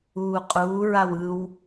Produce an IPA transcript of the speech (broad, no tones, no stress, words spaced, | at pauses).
uːqʼuː ɹawɯw